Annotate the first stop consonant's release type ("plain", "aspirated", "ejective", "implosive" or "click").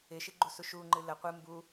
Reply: click